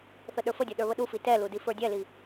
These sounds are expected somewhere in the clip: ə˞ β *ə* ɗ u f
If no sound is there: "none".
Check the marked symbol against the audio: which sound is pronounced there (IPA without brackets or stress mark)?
ə